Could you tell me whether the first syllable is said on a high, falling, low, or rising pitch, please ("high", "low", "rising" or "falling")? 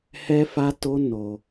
high